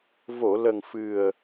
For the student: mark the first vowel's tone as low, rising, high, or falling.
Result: low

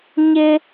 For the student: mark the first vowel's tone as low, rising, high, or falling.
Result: high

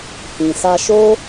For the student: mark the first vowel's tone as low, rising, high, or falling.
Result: low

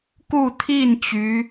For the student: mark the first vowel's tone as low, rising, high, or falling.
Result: falling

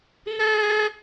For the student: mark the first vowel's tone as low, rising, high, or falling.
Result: high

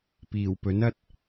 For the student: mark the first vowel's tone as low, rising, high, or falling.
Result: low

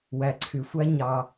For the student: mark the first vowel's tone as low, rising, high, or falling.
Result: low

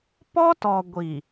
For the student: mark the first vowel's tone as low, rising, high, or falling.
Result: high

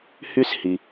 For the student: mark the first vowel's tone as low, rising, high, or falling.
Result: high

